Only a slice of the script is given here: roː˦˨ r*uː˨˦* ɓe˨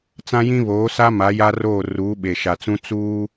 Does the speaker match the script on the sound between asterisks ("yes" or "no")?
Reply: yes